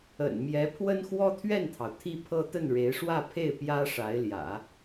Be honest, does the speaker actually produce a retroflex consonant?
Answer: yes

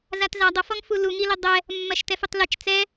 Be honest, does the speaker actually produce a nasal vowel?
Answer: no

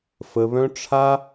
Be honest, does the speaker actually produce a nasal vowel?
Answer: yes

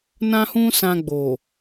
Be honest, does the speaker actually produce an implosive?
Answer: no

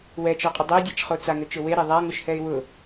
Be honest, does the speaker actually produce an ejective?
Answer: yes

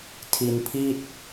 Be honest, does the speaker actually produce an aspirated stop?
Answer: yes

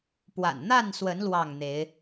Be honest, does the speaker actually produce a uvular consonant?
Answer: no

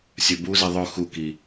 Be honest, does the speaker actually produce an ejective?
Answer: no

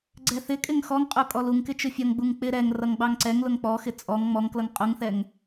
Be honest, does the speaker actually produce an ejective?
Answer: yes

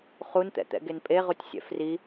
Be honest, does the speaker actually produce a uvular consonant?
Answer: yes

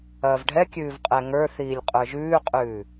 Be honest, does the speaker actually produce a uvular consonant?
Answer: yes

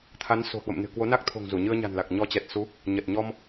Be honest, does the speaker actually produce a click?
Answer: no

